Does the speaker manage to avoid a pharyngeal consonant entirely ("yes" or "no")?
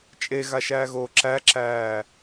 yes